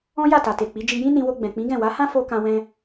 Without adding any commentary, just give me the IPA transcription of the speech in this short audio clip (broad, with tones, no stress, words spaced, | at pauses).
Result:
ɔ̃˦ja˦˨ta˨ te˨k͡pi˨˦ d͡ʒi˧jĩ˦ nĩ˧wo˧ ɡ͡bɛ̃˨k͡pĩ˨˦ɡɛ̃˦˨ wa˨˦hã˦ fo˦ kã˦wɛ̃˦